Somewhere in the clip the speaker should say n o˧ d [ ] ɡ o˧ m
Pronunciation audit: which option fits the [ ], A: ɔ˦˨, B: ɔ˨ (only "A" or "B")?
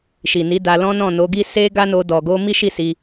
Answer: B